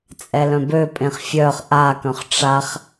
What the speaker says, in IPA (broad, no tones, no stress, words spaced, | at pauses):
t͡sʼɛlœ̃bøpʼẽχ fʲœχ ʔakœ̃χ ʈ͡ʂaχ